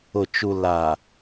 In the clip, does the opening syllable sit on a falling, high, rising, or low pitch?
low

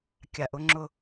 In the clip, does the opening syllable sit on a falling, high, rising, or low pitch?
low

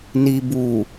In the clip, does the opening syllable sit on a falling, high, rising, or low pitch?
low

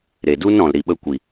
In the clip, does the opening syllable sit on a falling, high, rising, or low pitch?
low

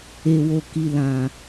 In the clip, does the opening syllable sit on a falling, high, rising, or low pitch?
low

